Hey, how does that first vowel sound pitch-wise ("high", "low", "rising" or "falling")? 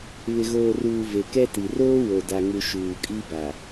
low